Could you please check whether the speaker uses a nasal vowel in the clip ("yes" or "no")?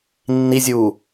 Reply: no